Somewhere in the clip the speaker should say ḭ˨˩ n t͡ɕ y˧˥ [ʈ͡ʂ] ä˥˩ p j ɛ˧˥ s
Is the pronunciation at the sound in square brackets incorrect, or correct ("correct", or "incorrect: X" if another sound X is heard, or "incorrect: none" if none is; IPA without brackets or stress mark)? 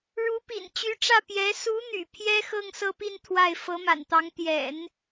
correct